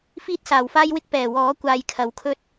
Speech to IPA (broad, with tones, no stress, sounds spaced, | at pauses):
f iː˥ t̚ s aː˨˩ w f aː˥ j w ɪ˥ k̚ p ɛː˨˩ w ɔː˨˥ kʷ aː˧ j kʰ ɐ˨˥ w kʰ ɵ˥ t̚